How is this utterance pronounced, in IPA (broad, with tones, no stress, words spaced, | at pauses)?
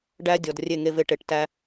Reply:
ɖæ˦ dʲɔ˨d rʲe˦˨ŋe˧ve˧ ʈe˨ʈtæ˧